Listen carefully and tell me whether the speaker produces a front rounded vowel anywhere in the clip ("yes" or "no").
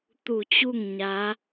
no